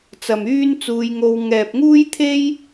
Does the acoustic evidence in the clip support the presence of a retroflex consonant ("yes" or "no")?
no